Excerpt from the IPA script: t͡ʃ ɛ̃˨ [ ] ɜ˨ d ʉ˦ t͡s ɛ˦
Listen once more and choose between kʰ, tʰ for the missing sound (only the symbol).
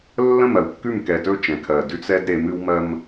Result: kʰ